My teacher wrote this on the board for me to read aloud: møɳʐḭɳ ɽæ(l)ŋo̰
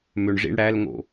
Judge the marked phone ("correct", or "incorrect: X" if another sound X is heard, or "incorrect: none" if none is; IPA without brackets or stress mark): correct